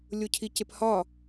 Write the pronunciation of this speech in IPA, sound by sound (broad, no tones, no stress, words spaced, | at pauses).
lʲocʰicephɒ